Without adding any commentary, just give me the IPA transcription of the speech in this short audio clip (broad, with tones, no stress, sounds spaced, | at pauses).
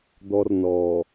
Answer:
d̪ ɔ˦ r n ɔː˨